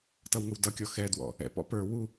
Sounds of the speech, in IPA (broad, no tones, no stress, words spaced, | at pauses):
tʌwŋəwdʌkʲɔ xɛdwɔ̰ | ɛ̰pɔ̰ pə˞ wu